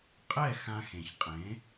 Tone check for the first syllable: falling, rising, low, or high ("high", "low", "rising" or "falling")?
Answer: falling